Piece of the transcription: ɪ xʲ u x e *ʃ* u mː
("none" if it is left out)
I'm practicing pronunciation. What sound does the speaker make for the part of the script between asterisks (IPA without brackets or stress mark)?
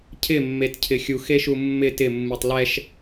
ʃ